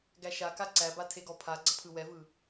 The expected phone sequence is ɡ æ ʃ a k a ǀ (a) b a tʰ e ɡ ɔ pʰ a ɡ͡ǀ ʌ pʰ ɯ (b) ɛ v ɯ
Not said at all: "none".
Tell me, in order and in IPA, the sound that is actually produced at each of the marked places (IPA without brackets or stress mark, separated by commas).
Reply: æ, w